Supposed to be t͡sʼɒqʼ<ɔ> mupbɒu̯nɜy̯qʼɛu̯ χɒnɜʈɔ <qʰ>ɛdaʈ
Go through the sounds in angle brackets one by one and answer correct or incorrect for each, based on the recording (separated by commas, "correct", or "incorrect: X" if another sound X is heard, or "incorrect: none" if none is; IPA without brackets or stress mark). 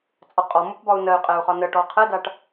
correct, correct